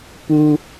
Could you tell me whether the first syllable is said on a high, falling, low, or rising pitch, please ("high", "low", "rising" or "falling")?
high